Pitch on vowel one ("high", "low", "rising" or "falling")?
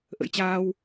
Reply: rising